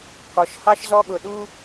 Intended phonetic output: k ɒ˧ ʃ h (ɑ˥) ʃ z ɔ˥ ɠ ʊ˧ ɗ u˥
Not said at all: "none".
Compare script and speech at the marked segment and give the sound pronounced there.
ɑ˥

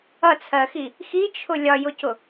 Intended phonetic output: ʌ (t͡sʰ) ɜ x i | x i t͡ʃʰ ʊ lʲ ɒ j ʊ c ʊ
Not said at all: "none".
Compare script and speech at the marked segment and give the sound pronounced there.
t͡sʰ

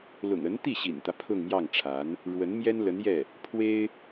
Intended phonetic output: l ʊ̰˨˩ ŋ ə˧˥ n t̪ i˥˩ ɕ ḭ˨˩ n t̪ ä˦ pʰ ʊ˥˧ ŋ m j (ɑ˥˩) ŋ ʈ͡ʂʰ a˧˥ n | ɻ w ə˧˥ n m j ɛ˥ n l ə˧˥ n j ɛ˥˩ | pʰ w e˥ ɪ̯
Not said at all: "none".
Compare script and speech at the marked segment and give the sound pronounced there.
ɑ˥˩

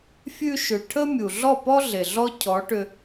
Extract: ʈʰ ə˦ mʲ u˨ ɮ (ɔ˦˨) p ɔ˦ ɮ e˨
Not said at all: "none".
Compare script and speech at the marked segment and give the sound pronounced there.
ɔ˦˨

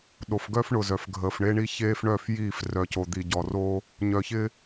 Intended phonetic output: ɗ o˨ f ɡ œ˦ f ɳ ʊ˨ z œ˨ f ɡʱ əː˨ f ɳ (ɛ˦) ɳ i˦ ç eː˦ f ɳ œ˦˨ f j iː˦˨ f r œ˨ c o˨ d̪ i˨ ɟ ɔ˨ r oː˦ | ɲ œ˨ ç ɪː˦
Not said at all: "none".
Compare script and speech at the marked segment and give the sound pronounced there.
e˦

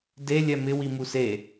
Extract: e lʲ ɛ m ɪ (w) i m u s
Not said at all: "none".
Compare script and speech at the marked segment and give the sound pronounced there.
w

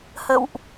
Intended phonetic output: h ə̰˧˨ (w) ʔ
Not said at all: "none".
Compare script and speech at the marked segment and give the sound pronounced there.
w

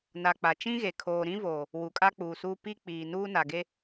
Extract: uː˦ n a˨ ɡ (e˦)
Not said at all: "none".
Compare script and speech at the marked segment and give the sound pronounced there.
e˦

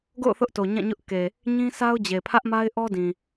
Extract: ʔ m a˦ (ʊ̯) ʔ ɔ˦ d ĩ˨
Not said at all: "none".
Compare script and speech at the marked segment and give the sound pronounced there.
ɪ̯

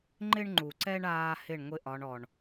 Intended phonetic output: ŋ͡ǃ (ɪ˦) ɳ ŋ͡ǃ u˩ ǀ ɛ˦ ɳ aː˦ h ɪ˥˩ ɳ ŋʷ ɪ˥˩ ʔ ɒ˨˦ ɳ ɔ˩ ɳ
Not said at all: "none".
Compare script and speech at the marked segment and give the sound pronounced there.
ɪ˦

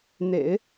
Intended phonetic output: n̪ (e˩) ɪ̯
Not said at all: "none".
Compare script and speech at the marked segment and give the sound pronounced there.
ḛ˨˩˦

